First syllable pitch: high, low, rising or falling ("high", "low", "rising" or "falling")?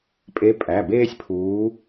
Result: rising